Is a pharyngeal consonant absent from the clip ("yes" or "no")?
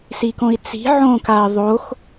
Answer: no